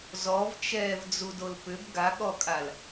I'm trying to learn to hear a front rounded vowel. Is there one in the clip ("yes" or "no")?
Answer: yes